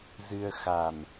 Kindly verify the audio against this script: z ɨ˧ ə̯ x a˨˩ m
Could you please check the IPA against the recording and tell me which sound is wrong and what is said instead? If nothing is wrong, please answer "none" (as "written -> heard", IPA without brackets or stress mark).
none